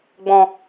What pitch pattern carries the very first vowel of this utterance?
low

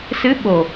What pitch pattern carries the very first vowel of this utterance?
rising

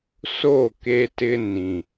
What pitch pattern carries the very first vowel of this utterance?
falling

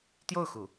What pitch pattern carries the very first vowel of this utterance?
falling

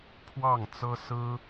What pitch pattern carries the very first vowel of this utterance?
falling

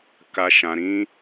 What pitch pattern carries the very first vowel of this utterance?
high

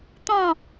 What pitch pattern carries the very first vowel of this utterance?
falling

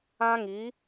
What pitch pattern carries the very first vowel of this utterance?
high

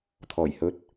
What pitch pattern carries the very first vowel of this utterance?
low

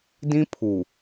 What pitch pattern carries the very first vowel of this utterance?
high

